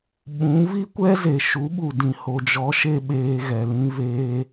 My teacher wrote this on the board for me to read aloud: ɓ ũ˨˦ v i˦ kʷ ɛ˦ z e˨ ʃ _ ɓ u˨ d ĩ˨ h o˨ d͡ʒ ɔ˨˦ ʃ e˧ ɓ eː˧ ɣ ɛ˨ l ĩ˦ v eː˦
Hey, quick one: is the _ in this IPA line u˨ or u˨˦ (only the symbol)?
u˨˦